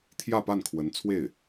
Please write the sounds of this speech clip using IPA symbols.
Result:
t̪ʰ j ä˥˧ p a˥˩ n kʰ w ə˧˥ n t͡sʰ w e˥˩ ɪ̯

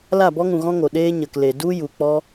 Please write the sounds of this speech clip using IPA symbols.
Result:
l a˦˨ b ɔ˦ ŋ ũ˨ ɣ ɔ̃˦ ŋ o˨ ɗ eː˦ ɲ ə˨ k l e˨ d u˦ j u˨ k͡p ɔ˦

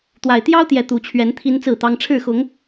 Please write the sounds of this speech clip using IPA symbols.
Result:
t̪ w a˨˩ ɪ̯ t̪ j ɑ˦ ʊ̯ t̪ j ɛ˨˦ t̪ u˨˩ t͡ɕʰ ɥ ɛ˨˦ n t̪ʰ i˦ n t͡s ɹ̩˥˨ t̪ ɑ˦ ŋ ʈ͡ʂʰ ɻ̩˥˨ x ʊ˨˦ ŋ

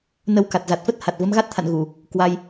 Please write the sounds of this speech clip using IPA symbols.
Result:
n ə˧ w k a˨˩ t̚ z a˨˩ t̚ f ə˦˥ t̚ h a˨˩ t̚ v ə˨˦ m ɣ a˦˥ t̚ t̪ʰ a̰˧˨ n ɣ u˧˩˨ | k w a˧ j

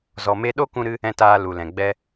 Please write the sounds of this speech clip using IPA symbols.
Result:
z ɔ˨ m e˧ ɗ o˦ k ũ˧ ɾ ɨ˦ | ɛ̃˧ t aː˧ l u˨ l ɛ̃˨ ɡ͡b ɛ˦

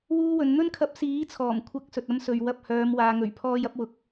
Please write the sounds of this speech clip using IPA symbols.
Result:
w uː˥ w ɵ˨˧ n n̪ ɵ˥ n kʰ ɐ˧ p̚ s iː˨˥ t͡sʰ ɔː˨˩ m kʷʰ ɐ˨˥ k̚ s ɵ˨ t̚ ɐ˥ m s ɵ˨ ɥ w ɐ˧ p̚ h œː˨˧ m w aː˨ ŋ ɵ˨˩ ɥ pʰ ɔː˧ j ɐ˥ p̚ w ʊ˨˥ k̚

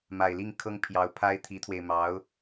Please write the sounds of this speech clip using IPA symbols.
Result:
m a˨˩ ɪ̯ l i˥˩ ŋ kʰ ɤ˥ ŋ pʰ j ɑ˧˥ ʊ̯ pʰ a˥ ɪ̯ t̪ʰ i˧˥ t̪ʰ w e˧ ɪ̯ m ɑ˧˥ ʊ̯

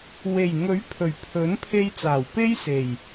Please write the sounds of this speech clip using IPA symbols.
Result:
w e˨˩ j ŋ ɵ˨˥ ɥ pʰ ɵ˨˩ ɥ pʰ ɵ˨˥ n pʰ e˧ j t͡s aː˨˩ w p e˥ j s e˨˩ j

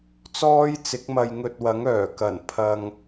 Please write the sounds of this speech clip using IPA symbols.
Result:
t͡s ɔː˥ j t͡s ɪ˨˥ k̚ m ɐ˧ j ŋ ɵ˧ t̚ w ɐ˨˥ ŋ œː˨˩ k ɐ˨˩ n pʰ ɐ˧ ŋ

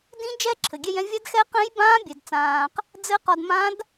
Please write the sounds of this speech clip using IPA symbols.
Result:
d ĩ˧˥ d͡ʒ ɛ˧˥ ǁʰ ɘ˩ ɡʲ ɛ˧ j ɛ̃˧ vʲ a˧˥ d x ɛ˧˥ q ɛ̃˧˥ j b ãː˧˥ bʲ ɛ˩ d t͡s ãː˩ q | d͡z ɘ˧˥ q ɒ˧ d m ã˧˥ d

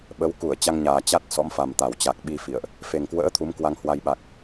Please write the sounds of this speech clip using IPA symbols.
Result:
ɓ ə˨˦ w k u˧˩ ə̯ t͡ɕ a˧ ŋ ɲ aː˨˩ t͡ɕ a˦˥ t̚ s ɔ̰˧˥ m f a˨˩ m t̪ a˧˩ w t͡ɕ a˨˩ k̚ ɓ i˧ f ḭ˧˨ ə̯ ʔ | f e˨˩ ŋ k w ə̰ː˧˥ t̪ʰ u˨˦ m k w a˧ ŋ h w a˧ j ɓ a˨˩ k̚

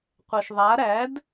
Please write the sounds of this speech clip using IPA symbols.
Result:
qʷ ɛ ʃ ðˤ a ɾ æ d

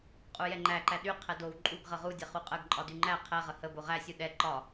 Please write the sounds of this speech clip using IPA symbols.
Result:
qʼ u j ɛ ŋ͡ǃ æ ǃ æ ɗ y qʰ ɛ d o w ǃʼ u ɡ ʁ ə ʁ u dʲ ɛ χ u qʼ ə ɡ ǃʼ ɒ d y ŋ͡ǃ æ qʰ ɛ ʁ ə h ə b o ʁ æ sʲ u ɗ ɛ ǃ ɒ

